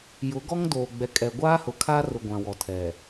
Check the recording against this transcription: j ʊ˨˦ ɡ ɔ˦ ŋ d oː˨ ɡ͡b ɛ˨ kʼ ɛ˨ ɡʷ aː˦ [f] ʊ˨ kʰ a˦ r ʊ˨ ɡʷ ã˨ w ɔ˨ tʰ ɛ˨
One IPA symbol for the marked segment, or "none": h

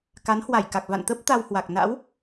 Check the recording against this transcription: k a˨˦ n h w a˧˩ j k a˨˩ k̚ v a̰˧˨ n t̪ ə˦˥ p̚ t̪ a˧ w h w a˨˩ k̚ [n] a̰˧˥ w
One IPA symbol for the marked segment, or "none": n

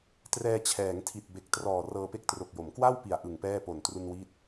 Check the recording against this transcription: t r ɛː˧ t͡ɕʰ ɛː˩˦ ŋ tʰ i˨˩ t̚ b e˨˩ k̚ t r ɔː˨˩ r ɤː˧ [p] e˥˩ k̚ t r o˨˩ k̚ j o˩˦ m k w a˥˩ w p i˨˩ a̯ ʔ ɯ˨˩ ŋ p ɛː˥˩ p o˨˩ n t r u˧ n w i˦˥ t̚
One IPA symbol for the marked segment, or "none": p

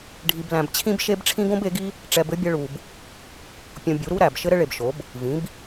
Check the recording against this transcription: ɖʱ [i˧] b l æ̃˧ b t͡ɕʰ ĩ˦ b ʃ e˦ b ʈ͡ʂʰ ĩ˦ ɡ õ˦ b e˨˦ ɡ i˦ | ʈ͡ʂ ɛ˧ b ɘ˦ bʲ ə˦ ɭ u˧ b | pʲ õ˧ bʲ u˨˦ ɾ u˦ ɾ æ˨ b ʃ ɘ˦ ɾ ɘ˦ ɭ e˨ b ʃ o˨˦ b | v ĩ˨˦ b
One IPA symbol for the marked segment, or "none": i˧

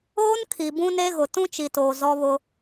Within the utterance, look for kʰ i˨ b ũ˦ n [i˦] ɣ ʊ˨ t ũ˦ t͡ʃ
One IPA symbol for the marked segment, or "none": e˦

